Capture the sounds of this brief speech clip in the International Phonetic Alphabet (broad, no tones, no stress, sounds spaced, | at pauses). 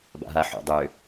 b a̰ ɦ a ħ ṵ dˤ ʏ